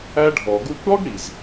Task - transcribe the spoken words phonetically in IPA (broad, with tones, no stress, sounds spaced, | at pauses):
æ˦ ɖʱ ɔ˨ ɡ u˧ kʷ ɽ ɔ˦ ɡ ɽ i˨ z